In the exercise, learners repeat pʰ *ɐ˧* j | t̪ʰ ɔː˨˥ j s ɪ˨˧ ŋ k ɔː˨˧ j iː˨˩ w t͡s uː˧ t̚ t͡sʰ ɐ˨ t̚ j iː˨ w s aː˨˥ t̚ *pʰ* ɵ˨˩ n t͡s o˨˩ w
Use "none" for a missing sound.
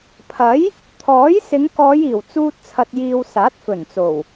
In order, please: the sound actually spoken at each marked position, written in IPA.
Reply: ɐ˨˥, f

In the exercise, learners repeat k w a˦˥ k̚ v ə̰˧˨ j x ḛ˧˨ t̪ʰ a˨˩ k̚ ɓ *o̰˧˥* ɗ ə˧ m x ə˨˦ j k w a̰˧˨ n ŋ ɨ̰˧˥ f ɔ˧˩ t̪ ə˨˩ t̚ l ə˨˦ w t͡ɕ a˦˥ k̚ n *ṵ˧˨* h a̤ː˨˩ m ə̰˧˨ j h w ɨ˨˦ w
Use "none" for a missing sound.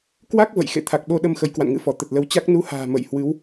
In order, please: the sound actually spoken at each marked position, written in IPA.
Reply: o˧, u˧

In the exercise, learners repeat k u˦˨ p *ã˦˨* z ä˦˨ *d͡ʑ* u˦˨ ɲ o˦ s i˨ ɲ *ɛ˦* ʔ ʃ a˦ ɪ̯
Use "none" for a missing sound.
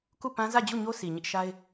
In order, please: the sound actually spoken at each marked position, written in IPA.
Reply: ã˦, d͡ʑ, ɪ˦

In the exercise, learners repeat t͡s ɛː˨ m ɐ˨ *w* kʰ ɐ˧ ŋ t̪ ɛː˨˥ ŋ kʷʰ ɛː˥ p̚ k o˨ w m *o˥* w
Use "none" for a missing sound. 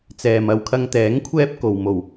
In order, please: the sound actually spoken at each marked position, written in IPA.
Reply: w, o˨˩

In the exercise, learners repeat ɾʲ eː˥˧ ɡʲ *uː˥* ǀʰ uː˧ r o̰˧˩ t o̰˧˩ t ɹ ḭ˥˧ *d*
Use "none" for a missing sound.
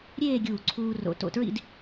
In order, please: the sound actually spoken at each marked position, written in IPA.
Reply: uː˧˩, d

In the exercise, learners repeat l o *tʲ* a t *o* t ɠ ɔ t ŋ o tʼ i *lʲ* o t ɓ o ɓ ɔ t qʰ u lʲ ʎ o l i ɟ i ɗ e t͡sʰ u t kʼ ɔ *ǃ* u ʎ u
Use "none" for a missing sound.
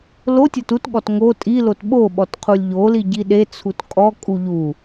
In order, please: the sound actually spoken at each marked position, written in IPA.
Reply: tʲ, u, l, kʼ

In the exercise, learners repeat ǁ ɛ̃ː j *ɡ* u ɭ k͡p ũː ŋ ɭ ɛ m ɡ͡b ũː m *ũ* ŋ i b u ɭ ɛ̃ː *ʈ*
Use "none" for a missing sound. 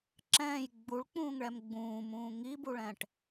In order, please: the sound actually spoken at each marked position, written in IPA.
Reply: ɡ͡b, ũː, ʈ

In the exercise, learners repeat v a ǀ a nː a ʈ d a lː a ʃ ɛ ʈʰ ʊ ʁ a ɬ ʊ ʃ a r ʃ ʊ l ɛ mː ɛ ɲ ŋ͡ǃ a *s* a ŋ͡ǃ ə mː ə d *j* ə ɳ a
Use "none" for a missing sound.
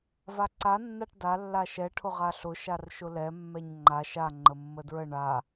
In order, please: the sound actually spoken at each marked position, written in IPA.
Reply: ʃ, ɹ

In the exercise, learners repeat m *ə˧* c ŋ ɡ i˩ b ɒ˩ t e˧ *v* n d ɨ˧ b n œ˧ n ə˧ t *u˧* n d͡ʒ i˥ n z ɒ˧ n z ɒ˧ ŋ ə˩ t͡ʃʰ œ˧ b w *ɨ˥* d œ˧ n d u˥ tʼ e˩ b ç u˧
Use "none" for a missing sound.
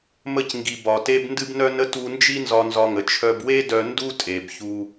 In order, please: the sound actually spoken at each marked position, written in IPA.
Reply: ə˧, b, u˧, e˥

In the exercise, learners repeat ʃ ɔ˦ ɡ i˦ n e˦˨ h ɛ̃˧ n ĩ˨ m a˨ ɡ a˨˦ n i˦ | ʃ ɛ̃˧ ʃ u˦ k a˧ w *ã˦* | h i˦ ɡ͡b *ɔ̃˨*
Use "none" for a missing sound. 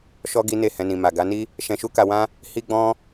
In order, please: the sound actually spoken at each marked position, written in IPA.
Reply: ã˦, ɔ̃˦

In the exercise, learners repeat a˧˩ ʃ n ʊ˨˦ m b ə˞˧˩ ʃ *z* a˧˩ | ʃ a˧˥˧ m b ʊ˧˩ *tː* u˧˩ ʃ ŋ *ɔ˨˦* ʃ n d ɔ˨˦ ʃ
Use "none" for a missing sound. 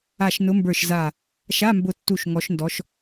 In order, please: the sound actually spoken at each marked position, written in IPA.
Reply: z, tː, ɔ˨˦

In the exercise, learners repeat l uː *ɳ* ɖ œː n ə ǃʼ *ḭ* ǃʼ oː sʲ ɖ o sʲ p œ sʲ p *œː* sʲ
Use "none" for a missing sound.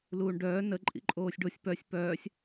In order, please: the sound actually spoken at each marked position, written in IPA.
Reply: ɳ, ḭ, œː

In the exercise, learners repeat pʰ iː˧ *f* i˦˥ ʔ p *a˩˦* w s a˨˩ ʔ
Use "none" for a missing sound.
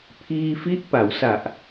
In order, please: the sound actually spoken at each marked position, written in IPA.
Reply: f, a˩˦

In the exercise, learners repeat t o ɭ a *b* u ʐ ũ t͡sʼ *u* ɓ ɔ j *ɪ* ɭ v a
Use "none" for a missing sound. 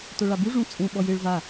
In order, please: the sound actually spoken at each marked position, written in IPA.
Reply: b, ũ, ɪ

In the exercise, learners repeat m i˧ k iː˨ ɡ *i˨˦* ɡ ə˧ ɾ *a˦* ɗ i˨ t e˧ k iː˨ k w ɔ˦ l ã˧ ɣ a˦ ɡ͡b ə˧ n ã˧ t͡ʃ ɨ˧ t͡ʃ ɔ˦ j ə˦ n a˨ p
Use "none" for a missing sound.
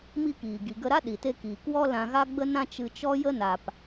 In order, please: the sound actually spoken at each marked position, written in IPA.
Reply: i˨, a˦

